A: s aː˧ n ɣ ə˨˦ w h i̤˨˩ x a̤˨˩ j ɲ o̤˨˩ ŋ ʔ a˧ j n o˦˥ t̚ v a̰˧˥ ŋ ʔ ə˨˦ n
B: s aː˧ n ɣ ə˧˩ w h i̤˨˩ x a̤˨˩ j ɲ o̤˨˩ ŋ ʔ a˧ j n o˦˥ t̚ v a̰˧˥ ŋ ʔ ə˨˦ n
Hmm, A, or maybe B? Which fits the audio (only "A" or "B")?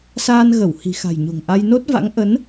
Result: B